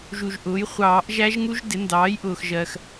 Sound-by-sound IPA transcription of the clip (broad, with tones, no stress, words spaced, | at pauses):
ʒu˨ʒʔʊː˩˥j χʷɑː˨˩˦ʔ ʒæ˦˥ʒŋu˦˥ʒ dɪ˩˥ndɑː˩˥j ʔʊː˨xʒɜ˨x